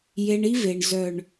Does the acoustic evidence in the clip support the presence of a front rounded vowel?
yes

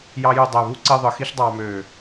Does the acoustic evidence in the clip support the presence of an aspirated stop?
no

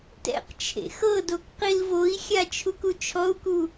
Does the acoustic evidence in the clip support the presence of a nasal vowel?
no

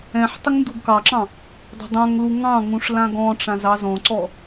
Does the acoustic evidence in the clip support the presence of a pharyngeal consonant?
yes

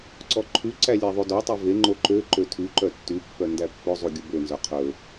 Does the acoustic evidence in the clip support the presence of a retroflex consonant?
no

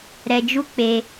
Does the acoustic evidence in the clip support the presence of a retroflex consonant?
no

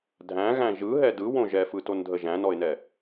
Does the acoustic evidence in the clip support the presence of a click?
no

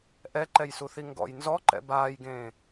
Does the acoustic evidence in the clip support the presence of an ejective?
no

